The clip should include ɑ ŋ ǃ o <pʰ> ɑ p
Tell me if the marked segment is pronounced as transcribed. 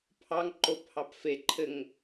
yes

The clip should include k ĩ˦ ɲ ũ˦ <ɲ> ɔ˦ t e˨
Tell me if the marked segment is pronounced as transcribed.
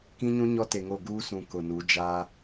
yes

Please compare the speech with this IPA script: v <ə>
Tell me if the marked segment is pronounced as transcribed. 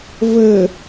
yes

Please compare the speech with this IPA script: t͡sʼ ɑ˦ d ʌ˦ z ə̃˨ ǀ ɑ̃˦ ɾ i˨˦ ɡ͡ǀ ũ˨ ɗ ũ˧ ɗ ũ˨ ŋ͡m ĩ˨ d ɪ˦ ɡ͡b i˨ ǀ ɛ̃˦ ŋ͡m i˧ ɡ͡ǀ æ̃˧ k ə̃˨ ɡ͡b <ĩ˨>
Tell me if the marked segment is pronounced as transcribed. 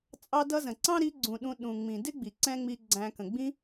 no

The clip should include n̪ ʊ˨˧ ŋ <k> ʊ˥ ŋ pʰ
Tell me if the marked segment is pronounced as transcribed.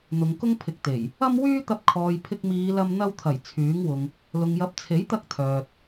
yes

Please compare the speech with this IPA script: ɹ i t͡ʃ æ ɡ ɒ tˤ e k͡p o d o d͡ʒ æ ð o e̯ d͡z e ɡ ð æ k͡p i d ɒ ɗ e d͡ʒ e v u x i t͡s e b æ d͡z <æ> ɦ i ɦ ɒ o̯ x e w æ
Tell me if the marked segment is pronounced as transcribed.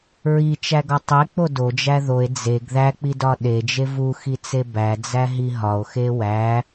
yes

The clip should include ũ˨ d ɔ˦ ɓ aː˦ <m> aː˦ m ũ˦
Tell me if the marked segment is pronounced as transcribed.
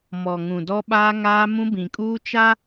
no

